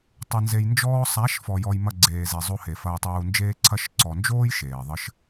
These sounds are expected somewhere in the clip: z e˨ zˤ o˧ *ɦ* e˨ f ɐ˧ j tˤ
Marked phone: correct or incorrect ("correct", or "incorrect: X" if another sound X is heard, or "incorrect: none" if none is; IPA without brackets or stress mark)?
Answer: incorrect: h